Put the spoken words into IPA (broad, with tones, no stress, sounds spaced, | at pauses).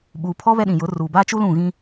ɓ uː˨ pʰ ɔ˦ β ɛ˦ ɗ ĩ˨ j ʊ˨˦ r uː˨ b aː˦ t͡ʃ u˦ l ũ˦˨ ɣ ĩ˦